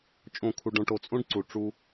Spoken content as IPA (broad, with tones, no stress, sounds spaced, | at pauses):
t͡ʃʼ õ˦˨ kʰ u˧ ɖ õ˧ ʈ o˧ t͡sʼ õ˦ ɖ ǀ u˨ ʈ͡ʂ u˦